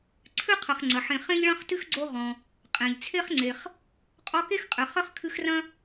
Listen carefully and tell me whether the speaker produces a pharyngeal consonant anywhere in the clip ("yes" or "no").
yes